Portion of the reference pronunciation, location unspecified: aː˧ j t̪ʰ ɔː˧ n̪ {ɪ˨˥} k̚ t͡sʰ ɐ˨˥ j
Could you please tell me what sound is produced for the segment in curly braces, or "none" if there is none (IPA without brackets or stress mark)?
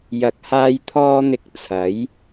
ɪ˨